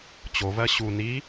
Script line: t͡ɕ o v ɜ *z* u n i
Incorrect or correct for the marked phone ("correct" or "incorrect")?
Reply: incorrect